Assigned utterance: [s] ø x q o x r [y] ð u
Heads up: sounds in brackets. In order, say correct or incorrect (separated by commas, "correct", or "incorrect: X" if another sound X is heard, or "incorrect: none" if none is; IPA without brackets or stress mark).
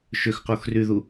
incorrect: ʃ, correct